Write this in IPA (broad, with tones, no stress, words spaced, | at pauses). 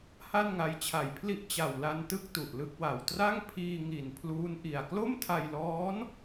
ha˥˩nŋa˧jt͡ɕʰa˨˩jpʰli˥˩ʔ t͡ɕa˨˩wla˧n tɯ˥˩k̚ tu˨˩ʔlɯ˥˩k̚wa˨˩w tra˥˩ŋpʰiː˧ŋi˨˩n pʰluː˦˥nʔi˨˩a̯ klo˥˩mtʰa˧jlɔː˦˥n